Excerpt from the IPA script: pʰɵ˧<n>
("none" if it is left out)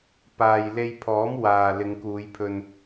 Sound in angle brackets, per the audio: n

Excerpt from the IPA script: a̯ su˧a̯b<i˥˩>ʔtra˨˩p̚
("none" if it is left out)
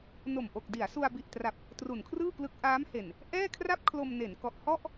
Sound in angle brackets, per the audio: i˨˩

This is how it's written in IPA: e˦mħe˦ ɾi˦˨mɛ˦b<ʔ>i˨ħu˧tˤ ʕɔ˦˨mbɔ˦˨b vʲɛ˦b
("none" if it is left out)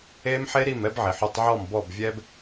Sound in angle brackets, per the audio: ʕ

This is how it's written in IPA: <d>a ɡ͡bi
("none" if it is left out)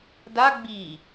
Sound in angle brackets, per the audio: d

